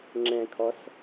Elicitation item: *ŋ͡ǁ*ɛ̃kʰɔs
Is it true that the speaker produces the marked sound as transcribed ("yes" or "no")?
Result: yes